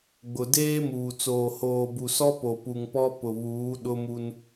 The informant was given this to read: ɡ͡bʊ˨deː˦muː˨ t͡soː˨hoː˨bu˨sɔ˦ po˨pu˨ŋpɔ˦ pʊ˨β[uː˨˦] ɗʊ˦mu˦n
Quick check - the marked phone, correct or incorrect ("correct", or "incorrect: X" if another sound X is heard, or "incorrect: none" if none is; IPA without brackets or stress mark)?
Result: correct